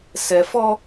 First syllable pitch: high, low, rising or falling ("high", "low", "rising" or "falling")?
low